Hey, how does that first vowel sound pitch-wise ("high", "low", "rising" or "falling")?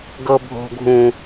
low